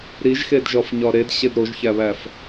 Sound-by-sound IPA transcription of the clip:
ɾiʒxed ʒɒfɲɒɾed ɕedɾoʒçæβæf

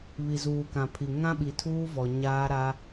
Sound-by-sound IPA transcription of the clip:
βi˨zuː˨kã˨pʰi˨ ŋã˦ɓi˨tʰuː˦vɔ˨ ɲaː˦ɾa˦

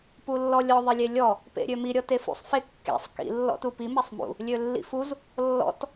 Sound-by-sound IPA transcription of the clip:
pulːɔlʲɔ ðˤilʲelʲɔ | pḛɾʲømi ɾʲɔtefṵsˤ fekːḛsˤ kḭ lːɔ̰tupi mesˤmṵ | lʲølːḭfuz | lːɔ̰t

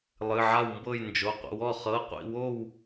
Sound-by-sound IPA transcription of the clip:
lˠɨ˩˧˩ʕa˥˨wmbɤ˥˨j nd͡ʒo˩˧˩qʷə̰˩˧˩wɔ˥˨ χɤ˩˧˩qʷḭ˥˨wo˥˨w

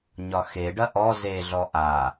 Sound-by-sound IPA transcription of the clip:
ɲɒxeɖɐ ʔɔ zeɮɔ ʔa

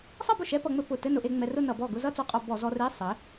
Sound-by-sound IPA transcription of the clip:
sˤʌ˥˧bʊ˥˩ʃɛ˧˥˧ pʌ˧ŋ͡mɘ˥˧ pʊ˧˩˧ tɘ˧˥˧nʊ˧ʔe˧ ŋ͡mɛ˧rʊ˥˧nʌ˧˩˧bɔ˥˩ ɡʊ˥˧zʌ˥˧ t͡sɔ˧qʼɔ˧˩˧ bɔ˧˩˧ zɔ˧re˧˥˧ sˤɘ˩˥

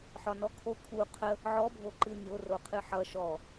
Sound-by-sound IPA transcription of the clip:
ħɒnɔkʰo kʰu qʰə | ʕɔbʱo ǃɨnʲo roqʰɨħʌ ʃɔ

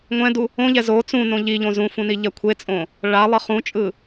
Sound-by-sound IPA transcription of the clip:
ŋʷɛ̃du | õʎɛ zo t͡sũnõ ʎiʎõ zũfũniʎɛ kʷʰet͡sʼõ | ɭalˠʌ χũt͡ʃʼɯ

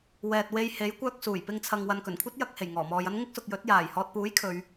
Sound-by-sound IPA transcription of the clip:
wɛː˨t̚we˧j he˨˥jkʷœː˧k̚suː˨˩j pɪ˧ŋt͡sʰɐ˨ŋwɐ˨n kɵ˨˩nkʷʰɐ˥t̚ jɐ˨k̚he˨˩j ŋɔː˨˩mɔː˨jɐ˥n ŋɪ˥k̚sʊ˨k̚jɵ˨˥t̚ jaː˨˩jhɔː˨t̚puː˨˥j kʰɵ˨˧ɥ

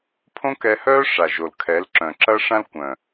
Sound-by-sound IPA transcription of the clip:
pʰõ˦kɛ˧hœː˦ ʂa˨ʒo˨l kʰɛ˨˦lǁœ̃˨ ǁɐ˦ʂã˦l kʷœ̃˨

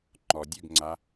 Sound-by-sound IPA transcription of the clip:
ŋ͡ǃɔ dʲʉɡŋ͡ǀa

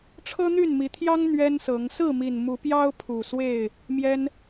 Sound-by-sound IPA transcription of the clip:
ʈ͡ʂʰɤ˦n̪y˥˨nmi˨˦t̪ʰjɑ˦ŋ n̪ɥɛ˦nsɤ˨˦ŋ sɹ̩˥˨mi˨˩n mu˨˦pjɑ˦ʊ̯ pʰu˨˩swe˥˨ɪ̯ | mjɛ˦n

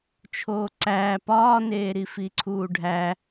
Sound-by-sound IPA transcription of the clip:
t͡ʃʰoːǀæː pɒːneːɾi fiǀʰuːɖʱæ

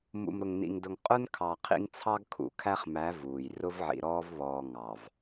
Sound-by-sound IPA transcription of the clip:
mṵ˨mɾʊ˨ŋnḭ˨ŋdʊ˨ŋ qʼʊ˦n kʰɑ˨qʰḭ˦ŋ t͡sʰɑ˦ɡkʰṵ˨kʰæ˦χmæ˨˦ vuː˨j rʊ˦vʕḭ˨ɾɔː˦vβɔː˨ ŋɑ˨v

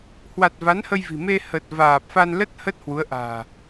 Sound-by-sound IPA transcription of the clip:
hwa˨˩t̚ va˨˦nhə˧j vi̤˨˩me˧ hə˨˩t̚ vaː˨˩p̚fa˧nlə˦˥t̚ hə˦˥t̚hwu˨˦ə̯ʔa̤ː˨˩

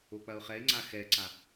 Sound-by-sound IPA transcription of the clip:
ok͡pɐʊ̯χɛɪ̯ŋ͡ǀa xɛǀa

